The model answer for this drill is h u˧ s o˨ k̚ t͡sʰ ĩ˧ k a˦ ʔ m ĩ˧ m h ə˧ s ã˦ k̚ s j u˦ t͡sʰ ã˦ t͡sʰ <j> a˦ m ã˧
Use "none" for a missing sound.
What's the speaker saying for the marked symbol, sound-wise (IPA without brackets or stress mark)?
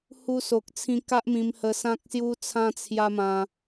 j